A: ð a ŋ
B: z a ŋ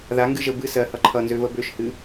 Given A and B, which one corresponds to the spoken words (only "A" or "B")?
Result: A